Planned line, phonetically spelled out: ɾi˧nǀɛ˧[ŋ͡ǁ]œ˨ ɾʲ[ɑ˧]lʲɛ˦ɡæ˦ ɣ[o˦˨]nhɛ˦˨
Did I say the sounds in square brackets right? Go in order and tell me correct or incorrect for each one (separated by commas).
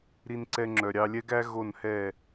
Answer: correct, correct, correct